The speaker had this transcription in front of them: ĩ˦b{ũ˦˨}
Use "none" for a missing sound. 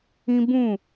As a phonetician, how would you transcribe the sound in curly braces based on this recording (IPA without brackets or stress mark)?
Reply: ũ˦˨